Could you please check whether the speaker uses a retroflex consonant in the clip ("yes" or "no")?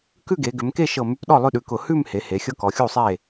no